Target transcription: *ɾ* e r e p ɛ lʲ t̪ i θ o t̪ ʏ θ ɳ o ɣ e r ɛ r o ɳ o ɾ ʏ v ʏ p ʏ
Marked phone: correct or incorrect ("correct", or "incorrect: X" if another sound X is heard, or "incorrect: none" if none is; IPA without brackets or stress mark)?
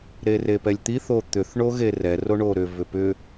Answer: correct